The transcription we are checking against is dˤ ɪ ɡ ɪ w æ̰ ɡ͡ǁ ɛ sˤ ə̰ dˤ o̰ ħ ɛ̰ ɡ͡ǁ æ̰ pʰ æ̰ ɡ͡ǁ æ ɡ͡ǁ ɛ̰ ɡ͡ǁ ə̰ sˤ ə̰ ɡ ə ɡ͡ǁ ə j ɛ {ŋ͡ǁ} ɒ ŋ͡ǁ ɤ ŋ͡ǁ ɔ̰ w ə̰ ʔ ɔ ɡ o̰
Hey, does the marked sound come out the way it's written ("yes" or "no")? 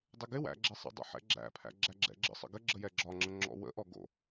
no